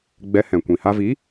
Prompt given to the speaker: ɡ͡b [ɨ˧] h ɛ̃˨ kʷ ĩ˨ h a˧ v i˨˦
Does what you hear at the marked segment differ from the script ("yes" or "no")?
yes